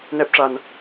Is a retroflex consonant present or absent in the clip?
present